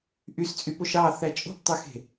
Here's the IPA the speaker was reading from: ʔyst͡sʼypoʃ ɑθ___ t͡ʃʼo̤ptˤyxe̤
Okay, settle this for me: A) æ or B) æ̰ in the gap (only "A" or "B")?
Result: A